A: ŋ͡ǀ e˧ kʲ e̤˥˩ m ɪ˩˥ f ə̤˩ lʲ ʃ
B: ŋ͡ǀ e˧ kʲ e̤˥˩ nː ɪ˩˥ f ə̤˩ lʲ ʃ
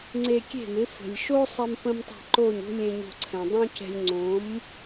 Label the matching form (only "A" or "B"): A